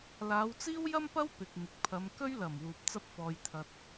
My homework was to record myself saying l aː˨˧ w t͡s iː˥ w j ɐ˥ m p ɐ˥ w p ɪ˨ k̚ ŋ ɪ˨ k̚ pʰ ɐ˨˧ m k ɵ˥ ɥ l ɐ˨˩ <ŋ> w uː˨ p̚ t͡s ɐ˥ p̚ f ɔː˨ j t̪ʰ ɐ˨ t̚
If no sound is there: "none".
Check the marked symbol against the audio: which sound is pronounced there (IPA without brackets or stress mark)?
m